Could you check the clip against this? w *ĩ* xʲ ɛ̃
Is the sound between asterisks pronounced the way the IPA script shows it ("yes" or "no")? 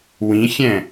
yes